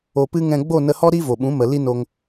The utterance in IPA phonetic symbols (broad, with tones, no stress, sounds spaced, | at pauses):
o˧ p ɨ˦ ŋ ɛ̃˧ ɡ͡b o˦˨ n ə˧ h ɔ˦ ɾ i˦ v o˨ ɓ ũ˨˦ m ə˨ l i˦ n o˧ ŋ